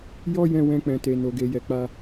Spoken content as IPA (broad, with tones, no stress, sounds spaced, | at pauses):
j ɔ˧ j ɛ̃˧ w ɛ̃˧ k͡p ɛ̃˨ t e˨ n o˨ ɡ e˨ j ɛ˨ k͡p a˧